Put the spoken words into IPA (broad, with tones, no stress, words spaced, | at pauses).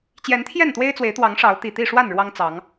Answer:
t͡ɕjɛ˨˦nt̪ʰjɛ˥˨nt̪we˦ɪ̯t͡swe˨˦ɪ̯ t̪wɑ˨˦ŋʂɑ˨˦ʊ̯ t̪i˨˩t̪i˥˨ʂwa˥˨n ɻwɑ˦ŋt͡sɑ˨˦ŋ